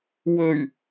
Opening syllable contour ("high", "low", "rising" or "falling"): low